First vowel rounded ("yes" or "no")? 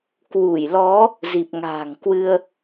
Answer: yes